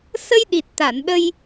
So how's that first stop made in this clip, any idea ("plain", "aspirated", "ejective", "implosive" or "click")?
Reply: implosive